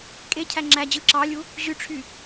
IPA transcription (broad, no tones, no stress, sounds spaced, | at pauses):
kʼ e cʰ æ ŋ͡ǁ æ d͡ʑ ɯ ǁ ɑ lʲ u | ʑ y ʈ͡ʂʰ y